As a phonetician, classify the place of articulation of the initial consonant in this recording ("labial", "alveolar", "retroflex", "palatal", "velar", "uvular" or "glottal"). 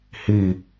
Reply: glottal